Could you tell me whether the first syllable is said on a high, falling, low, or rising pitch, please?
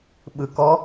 low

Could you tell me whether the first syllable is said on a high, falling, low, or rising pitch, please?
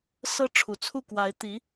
high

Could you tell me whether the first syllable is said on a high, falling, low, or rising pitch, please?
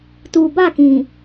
low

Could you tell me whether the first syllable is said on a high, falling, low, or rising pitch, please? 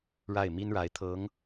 falling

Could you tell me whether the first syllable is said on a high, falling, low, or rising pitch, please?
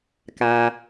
low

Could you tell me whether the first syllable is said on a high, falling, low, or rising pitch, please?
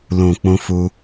low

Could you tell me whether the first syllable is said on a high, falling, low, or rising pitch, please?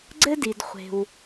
high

